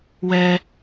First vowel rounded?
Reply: no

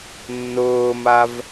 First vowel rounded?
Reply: yes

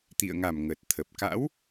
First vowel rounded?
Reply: no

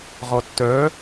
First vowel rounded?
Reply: yes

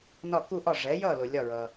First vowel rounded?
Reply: yes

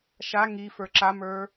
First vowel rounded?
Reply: no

